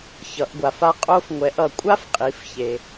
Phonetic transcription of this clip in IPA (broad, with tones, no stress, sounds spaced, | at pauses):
ç ʌ˩˧ ʔ ɡʷ a˩ f a˧ qʼ o˧ f ŋʷ ɛ˩˧ ʔ ʌ˩ kʷʼ a˥ f qʼ i˩˧ f ç e˩